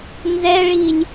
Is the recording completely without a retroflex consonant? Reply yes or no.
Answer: no